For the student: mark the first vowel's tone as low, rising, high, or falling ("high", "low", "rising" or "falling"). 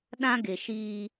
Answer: high